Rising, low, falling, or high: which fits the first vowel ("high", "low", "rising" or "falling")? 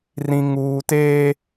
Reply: high